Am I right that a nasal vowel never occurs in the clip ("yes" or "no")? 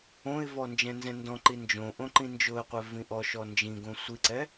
no